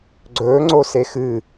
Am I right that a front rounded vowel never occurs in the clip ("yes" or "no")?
yes